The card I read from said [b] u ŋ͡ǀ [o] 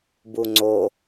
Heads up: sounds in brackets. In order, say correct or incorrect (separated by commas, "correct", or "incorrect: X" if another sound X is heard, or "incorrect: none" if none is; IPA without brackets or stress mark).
correct, correct